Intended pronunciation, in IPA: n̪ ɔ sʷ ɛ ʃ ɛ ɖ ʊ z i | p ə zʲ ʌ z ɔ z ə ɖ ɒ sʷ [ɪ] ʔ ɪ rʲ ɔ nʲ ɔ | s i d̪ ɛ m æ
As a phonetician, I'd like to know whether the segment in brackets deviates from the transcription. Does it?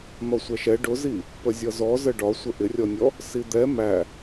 yes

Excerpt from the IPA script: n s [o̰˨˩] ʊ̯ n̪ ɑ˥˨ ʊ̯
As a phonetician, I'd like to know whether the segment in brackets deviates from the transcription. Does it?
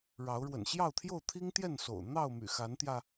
no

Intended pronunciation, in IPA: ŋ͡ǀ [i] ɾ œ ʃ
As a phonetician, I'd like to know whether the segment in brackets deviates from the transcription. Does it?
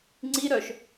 no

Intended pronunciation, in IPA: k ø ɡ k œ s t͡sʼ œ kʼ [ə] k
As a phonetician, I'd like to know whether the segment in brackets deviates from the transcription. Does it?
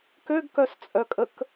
no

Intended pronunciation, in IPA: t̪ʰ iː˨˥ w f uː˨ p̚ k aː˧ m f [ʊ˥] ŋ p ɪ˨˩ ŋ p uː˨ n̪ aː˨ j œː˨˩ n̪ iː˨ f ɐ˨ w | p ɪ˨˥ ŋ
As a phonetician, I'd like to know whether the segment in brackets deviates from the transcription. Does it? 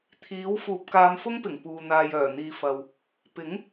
no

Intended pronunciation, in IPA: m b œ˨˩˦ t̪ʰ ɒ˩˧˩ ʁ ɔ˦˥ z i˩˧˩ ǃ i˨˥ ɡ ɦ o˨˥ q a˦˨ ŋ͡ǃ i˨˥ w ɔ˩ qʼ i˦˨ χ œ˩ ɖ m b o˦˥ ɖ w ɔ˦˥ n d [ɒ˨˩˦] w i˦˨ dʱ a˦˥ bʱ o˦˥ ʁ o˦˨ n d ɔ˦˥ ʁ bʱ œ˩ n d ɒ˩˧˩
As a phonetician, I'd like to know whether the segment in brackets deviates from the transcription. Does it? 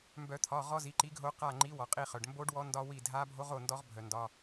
yes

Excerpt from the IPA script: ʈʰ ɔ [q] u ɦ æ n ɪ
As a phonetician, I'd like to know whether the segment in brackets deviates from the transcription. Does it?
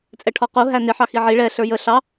no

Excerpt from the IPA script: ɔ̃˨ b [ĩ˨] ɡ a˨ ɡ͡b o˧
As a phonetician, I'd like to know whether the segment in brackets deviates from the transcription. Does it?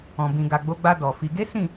no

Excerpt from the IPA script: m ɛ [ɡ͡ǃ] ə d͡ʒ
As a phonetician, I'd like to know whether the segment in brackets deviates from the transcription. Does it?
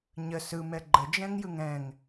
no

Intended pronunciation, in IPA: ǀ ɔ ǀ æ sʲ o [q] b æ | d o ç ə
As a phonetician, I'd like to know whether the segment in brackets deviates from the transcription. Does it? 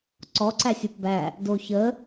yes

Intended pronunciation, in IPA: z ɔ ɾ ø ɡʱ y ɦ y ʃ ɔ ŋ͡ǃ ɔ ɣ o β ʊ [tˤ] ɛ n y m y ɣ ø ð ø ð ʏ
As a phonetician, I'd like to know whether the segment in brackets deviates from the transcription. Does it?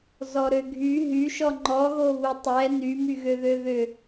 no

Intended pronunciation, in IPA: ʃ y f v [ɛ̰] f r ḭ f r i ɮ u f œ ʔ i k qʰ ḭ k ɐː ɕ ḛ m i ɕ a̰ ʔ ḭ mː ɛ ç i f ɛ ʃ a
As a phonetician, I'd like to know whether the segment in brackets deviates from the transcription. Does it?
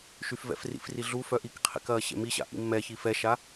no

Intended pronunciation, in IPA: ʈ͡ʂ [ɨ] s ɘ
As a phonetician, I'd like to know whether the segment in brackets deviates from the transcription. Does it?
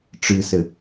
no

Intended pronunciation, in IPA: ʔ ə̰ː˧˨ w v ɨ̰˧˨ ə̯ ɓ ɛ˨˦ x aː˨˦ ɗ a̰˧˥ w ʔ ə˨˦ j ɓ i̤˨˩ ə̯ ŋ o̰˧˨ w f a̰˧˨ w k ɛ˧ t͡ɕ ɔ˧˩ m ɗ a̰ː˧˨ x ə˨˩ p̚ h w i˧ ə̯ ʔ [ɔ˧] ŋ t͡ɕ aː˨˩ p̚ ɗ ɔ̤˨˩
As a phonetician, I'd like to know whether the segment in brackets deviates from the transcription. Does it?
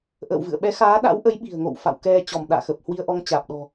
no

